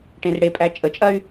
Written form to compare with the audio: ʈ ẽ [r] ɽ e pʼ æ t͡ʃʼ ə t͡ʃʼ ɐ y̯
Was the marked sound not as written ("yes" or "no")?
no